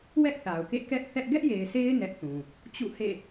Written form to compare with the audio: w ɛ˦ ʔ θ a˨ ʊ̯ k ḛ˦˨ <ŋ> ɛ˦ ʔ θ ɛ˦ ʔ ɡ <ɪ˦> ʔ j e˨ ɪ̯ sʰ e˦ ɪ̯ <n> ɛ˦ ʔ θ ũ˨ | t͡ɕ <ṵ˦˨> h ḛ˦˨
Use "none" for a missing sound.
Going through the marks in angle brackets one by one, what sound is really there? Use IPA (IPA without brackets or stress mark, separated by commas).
k, ɛ˦, n, ṵ˦˨